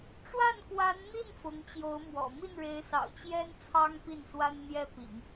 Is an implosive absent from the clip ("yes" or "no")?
yes